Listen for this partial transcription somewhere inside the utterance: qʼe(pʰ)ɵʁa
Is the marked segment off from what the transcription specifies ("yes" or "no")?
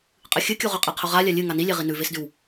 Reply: yes